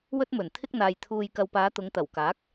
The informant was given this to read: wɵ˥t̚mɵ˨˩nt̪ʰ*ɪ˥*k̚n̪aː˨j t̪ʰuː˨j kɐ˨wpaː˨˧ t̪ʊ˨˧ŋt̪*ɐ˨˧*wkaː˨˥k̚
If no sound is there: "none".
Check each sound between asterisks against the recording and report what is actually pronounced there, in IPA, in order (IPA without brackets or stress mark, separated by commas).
ɪ˥, ɐ˨˩